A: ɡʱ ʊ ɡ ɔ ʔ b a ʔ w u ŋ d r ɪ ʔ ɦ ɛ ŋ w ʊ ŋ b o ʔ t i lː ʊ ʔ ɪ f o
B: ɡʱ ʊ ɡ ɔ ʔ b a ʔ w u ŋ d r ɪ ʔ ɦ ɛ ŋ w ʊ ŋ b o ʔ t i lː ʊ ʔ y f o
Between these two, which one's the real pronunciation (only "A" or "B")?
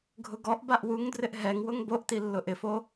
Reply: A